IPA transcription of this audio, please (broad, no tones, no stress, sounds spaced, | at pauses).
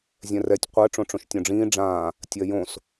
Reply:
zʲ ɛ̃ r ɛ tʲ qʷ ɜ ʈ͡ʂ õ ʈ͡ʂ õ ʃ tʲ õ ɖ͡ʐ ĩː ɖ͡ʐ ãː | tʲ ɜ j õ s